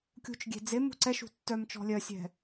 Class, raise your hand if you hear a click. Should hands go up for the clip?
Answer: yes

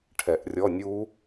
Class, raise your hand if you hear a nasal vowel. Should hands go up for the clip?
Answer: no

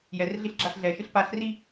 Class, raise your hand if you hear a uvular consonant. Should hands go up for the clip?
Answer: no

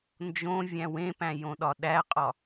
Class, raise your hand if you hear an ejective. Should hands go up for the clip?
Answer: yes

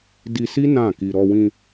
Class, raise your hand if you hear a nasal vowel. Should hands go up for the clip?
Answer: yes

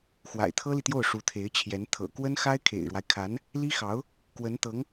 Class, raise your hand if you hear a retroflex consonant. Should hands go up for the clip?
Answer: yes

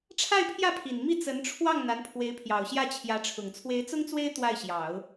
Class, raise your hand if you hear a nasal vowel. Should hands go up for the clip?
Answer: no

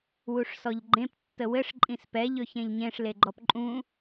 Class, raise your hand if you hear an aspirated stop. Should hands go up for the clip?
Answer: no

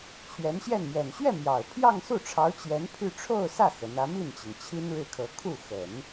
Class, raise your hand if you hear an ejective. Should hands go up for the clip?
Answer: no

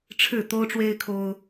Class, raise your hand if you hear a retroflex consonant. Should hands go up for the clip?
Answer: yes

